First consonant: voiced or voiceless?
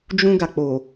voiced